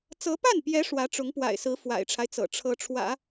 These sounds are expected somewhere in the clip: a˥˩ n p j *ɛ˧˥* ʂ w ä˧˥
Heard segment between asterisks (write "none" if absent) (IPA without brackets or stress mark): ɛ˧˥